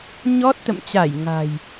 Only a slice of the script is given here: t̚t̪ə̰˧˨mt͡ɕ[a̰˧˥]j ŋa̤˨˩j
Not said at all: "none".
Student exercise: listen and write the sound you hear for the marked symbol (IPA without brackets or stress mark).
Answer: a˧˩